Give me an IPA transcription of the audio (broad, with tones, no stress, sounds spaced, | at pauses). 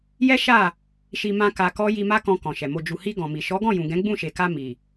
j ɛ˦ ʃ a˦˨ | ʃ i˧ m ã˦ k a˧ k ɔ˦ j i˧ m a˦ k ɔ̃˧ k ɔ̃˨ ʃ ɛ˨ m o˨ d͡ʒ u˨ h i˧ ɡ ɔ̃˨ m i˨ ʃ ɔ˨˦ ɡ ɔ̃˦˨ j ũ˨ ɡ ɛ̃˨˦ ɡ͡b ũ˦˨ ʃ e˨ k a˧ m i˨